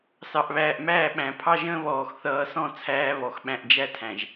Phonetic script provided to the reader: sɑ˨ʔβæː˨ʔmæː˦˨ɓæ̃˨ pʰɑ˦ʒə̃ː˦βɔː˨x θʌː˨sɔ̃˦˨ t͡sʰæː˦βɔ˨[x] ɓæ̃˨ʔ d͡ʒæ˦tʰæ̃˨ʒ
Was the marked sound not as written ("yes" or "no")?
no